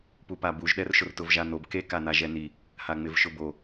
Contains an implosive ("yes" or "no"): yes